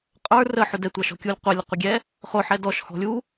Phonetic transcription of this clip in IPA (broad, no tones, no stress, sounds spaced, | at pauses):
qʼ ə˞ r ə ħ ʊ d ɛ tʷ ɑ ʃ ɔ̤ kʲ u lʲ qʷ ɛ lʲ ə qʷ ɪ ɡʲ ɛ | χ ʊ ħ ɛ d ɔ ʃ h ɔ̤ lʲ u